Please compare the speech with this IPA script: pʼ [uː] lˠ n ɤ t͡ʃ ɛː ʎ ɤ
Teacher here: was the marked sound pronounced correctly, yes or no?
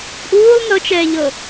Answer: yes